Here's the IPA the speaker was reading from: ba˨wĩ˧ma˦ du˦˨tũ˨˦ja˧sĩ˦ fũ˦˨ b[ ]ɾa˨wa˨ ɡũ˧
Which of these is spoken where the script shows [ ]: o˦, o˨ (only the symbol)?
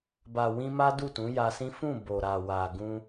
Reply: o˨